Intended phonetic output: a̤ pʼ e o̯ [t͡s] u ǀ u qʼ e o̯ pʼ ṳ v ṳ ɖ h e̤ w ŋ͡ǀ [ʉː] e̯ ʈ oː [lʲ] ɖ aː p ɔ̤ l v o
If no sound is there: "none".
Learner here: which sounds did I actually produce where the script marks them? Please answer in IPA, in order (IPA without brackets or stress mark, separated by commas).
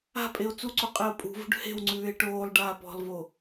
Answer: t͡s, ʉː, lˠ